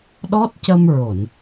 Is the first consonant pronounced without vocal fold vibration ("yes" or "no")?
no